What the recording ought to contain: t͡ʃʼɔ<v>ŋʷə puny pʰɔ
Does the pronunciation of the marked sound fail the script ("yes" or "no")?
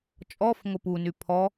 yes